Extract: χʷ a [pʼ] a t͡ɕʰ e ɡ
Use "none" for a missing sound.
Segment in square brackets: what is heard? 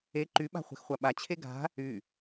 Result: ɓ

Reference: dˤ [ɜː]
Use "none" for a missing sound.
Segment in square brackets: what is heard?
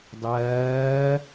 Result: ɜː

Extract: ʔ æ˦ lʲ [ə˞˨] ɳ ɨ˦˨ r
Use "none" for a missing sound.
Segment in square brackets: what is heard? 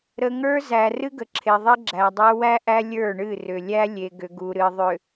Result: ə˞˦˨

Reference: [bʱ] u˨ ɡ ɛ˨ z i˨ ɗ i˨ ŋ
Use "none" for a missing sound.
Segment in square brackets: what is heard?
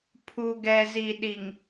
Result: pʰ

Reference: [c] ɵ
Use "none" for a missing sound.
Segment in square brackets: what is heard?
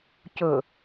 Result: c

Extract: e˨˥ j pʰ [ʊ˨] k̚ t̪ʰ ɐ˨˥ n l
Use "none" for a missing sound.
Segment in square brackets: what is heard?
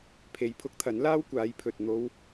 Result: ʊ˨˥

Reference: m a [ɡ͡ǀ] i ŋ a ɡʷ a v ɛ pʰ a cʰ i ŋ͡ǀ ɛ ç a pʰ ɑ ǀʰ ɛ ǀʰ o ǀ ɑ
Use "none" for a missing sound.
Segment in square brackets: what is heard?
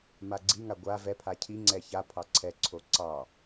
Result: ɡ͡ǀ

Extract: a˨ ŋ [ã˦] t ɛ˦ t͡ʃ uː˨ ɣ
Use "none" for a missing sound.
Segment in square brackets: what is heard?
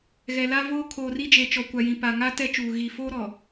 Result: a˦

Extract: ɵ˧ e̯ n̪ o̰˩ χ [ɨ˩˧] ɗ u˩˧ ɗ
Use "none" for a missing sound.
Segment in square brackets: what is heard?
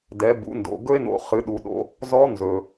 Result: ɨ˩˧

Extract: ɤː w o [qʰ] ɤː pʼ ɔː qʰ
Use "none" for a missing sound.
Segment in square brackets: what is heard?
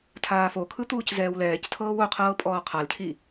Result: qʰ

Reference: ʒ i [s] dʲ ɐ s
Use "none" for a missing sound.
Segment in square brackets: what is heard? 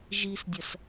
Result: s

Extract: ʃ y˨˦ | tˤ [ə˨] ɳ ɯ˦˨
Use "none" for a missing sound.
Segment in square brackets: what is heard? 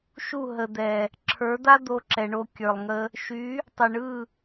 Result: ə˨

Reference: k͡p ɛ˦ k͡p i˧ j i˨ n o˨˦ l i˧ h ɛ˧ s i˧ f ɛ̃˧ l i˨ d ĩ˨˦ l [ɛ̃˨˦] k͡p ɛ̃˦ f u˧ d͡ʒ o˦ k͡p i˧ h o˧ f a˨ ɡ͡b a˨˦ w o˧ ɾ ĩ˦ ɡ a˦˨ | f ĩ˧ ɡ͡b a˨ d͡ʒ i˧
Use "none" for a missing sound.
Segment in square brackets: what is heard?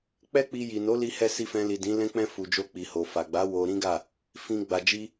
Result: ɛ̃˦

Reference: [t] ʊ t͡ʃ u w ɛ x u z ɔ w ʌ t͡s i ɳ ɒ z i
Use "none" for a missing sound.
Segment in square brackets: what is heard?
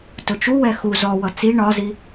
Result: t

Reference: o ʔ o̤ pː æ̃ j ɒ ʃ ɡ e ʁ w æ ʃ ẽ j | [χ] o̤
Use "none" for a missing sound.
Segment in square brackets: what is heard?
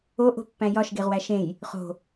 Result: χ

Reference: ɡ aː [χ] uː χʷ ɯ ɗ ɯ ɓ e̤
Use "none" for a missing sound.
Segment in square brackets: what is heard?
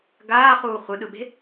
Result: χ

